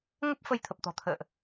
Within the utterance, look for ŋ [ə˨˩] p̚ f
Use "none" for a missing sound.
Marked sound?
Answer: ə˦˥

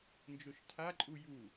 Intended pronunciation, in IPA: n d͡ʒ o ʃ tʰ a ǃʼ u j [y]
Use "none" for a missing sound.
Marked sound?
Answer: u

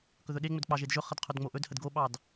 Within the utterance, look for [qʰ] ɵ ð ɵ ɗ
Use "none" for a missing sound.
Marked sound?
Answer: k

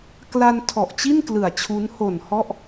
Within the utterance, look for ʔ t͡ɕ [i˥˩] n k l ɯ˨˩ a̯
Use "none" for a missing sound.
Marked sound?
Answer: i˥˩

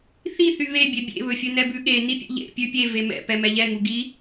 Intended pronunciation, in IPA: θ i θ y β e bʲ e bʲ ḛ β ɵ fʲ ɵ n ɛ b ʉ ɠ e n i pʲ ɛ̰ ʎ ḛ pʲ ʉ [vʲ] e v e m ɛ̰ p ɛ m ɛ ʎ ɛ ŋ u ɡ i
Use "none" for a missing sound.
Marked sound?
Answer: pʲ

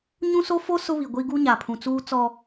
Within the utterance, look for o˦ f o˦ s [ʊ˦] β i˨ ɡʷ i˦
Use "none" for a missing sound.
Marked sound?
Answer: ʊ˦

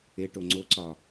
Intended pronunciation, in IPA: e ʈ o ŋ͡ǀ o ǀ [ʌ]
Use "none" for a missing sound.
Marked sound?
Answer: ɒ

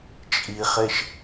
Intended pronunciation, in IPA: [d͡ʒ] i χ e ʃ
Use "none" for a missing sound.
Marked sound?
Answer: t͡ʃʼ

